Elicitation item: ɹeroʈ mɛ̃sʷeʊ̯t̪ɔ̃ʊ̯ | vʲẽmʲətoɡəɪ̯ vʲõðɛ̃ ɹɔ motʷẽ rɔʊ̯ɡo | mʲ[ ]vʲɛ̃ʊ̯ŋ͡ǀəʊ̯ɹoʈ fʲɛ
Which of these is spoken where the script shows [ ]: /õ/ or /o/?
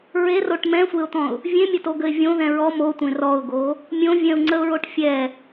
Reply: õ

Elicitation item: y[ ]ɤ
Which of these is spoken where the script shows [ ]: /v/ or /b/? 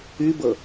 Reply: b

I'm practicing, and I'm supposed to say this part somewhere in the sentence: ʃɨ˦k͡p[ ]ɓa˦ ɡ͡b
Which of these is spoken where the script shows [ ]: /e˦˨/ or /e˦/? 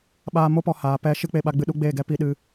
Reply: e˦˨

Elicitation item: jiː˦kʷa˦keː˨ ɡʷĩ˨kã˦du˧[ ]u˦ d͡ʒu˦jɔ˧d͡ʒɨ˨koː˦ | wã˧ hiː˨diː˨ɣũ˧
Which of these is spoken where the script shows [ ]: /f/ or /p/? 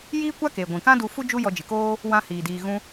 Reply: f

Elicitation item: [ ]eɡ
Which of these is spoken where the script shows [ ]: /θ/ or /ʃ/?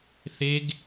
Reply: θ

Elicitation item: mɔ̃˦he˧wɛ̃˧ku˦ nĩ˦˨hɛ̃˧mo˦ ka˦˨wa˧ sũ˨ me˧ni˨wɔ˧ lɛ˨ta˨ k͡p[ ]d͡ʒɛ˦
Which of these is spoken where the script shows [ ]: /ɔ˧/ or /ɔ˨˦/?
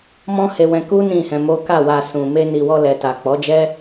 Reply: ɔ˨˦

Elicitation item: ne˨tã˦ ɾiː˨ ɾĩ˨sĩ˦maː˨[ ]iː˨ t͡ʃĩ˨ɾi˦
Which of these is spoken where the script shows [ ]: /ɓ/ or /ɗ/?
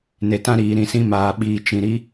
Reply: ɓ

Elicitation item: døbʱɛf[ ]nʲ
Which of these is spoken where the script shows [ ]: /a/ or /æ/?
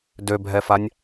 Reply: a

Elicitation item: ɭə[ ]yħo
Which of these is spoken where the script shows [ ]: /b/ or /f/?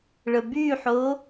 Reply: b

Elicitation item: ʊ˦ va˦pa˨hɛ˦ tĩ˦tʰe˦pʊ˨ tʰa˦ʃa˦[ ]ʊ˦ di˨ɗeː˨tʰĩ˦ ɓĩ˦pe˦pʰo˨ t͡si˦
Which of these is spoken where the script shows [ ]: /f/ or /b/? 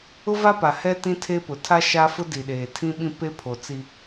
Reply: f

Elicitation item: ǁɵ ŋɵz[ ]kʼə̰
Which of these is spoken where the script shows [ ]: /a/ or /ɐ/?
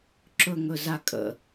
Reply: a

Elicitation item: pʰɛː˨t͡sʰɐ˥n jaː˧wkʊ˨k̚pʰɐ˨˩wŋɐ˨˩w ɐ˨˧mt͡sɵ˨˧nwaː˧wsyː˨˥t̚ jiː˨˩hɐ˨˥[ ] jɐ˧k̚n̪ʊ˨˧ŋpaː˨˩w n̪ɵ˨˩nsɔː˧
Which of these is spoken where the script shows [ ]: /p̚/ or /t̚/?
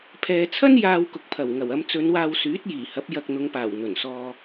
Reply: p̚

